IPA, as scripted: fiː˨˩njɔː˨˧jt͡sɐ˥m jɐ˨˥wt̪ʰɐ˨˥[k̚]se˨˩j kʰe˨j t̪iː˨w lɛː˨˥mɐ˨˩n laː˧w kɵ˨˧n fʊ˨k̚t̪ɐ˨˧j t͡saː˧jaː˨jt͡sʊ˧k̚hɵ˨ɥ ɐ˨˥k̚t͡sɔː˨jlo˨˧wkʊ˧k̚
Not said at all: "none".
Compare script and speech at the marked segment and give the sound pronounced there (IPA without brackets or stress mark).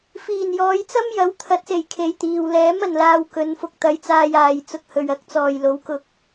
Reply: t̚